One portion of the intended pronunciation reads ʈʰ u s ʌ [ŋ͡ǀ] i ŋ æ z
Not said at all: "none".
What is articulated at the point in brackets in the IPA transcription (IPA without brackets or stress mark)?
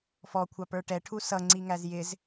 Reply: ŋ͡ǀ